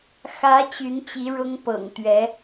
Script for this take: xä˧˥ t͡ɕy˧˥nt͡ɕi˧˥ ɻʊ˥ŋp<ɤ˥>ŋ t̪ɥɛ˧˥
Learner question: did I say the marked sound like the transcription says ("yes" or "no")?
no